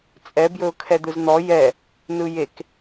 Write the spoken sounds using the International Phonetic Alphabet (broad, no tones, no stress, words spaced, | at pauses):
t͡sʼɛ bjɵʊ̯kʰɛd̪ɯzn̪ɔ jɛ | nɯjek